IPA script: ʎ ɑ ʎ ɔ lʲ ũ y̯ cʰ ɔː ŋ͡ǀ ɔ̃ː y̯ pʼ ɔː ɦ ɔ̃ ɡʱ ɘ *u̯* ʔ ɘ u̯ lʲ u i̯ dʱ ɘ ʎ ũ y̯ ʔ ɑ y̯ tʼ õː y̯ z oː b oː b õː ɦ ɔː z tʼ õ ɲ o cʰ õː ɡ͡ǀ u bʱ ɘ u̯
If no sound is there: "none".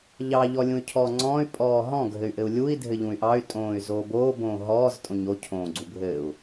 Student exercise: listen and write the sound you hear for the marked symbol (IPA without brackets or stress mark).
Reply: y̯